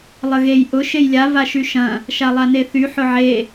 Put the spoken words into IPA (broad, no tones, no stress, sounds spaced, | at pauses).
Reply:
lˠ ə ɣ e j ʔ ʊ ʃ e j lʲ a v a ʃ y ʃ ɐ̃ | ʃ a lˠ a n e θ y ħ ʊ ʕ e